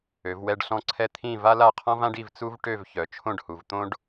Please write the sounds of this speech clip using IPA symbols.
ø˩˧ v w ɛ˥˧ ɖ ɬ ɔ̃˥˧ ǀʰ ɛ˥ t̪ʰ ĩ˥˧ v a˥ l a˥˧ qʰ ɔ̃˥ v ã˥ ɖ i˥˧ v t͡s u˥ v ʈ ø˥˧ v ç œ˩˧ t͡ʃʰ õ˥˧ ɖ h u˩˧ v t̪ õ˥ ɖ

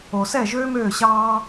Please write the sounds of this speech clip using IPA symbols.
o˨ s ɛ˦˨ ʒ øː˦ m øː˦˨ ɕ ɑː˦

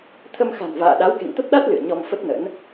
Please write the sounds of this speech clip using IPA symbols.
t̪ʰ ə˧ m x a̤˨˩ n v a̰ː˧˨ ɗ a˨˦ w k ḛ˧˨ ŋ t̪ ə˦˥ p̚ ɗ a˦˥ t̚ l ɨ̰˧˨ ə̯ ɲ ɔ˧ m f ə˦˥ t̚ n ə̰˧˥ n

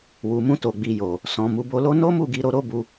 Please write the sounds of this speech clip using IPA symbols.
w u˨ m ũ˧ t o˨ ɡ͡b i˨ j o˨ | s ɔ̃˨ m u˨˦ b o˧ l o˦ n o˦ m u˦˨ ɡ i˧ ɾ o˧ ɾ o˦ b u˧

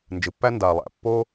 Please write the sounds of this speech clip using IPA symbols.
n d͡ʒ ɯ˩ pː æ˥ n d a˩ lˠ æ̰˩ pː o˥

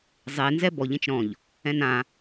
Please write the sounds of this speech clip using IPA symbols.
zˤ e n z ɛ b ɔ ʎ ẽ t͡ʃ ɾ ɔ̃ ʎ | ɛ̃ n ã

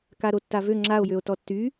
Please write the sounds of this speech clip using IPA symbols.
k a ɾ o tː a v ø ŋ͡ǁ a o̯ j ø o̯ t ɔ tː y

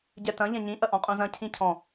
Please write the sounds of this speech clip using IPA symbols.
ɟ ɛ t ɐ̃ ʎ ɛ̃ ɲ ĩ ʔ ɐ ʔ ɔ̃ qʼ ũ z ɐ̃ cʰ ĩ cʰ ɔ̃

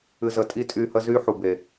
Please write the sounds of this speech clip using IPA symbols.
ɨ˧ z ə˧ tʼ i˦ tʼ y˧ h ə˦ z y˦ ħ u˨ b e˨

